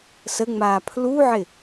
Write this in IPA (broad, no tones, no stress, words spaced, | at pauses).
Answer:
səŋ͡maː pʰluʕɪ